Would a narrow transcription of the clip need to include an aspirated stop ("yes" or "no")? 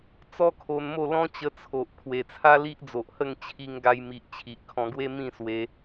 yes